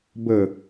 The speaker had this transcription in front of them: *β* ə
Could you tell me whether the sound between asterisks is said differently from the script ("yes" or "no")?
yes